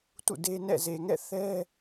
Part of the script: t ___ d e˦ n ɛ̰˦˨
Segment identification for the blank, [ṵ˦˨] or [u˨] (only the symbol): ṵ˦˨